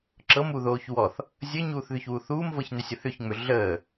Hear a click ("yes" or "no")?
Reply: yes